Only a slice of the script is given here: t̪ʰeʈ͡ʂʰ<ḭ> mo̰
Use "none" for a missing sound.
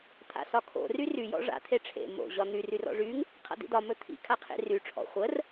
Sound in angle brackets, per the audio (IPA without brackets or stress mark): ḛ